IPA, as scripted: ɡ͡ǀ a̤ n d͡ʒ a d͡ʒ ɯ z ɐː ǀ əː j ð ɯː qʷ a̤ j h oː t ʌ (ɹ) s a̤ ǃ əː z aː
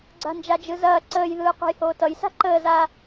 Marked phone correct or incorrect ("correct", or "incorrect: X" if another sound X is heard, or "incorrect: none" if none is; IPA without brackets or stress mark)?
incorrect: j